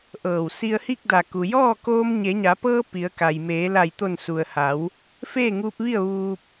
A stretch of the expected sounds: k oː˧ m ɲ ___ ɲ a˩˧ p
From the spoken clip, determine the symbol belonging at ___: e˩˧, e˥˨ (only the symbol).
e˩˧